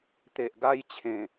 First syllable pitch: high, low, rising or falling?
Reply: low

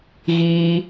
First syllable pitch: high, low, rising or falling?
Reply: high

